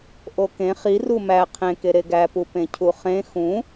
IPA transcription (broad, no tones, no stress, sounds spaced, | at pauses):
ʔ o k ẽ χ i r u m æ qʰ ẽ k e ɾ e ɡ æ p u p ẽ cʰ u χ ẽ x ũ